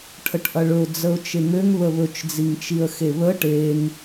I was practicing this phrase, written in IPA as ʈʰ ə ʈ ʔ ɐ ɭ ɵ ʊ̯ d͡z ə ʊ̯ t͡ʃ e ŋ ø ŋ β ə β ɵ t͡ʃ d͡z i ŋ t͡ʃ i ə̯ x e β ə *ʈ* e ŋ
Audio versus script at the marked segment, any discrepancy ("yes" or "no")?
no